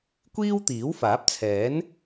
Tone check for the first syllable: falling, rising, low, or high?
high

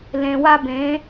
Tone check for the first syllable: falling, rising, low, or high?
low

